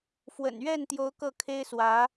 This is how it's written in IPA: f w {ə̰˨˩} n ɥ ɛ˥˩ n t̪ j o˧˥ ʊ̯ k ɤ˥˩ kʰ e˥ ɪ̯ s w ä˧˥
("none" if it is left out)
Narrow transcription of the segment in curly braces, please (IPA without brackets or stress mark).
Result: ə̰˨˩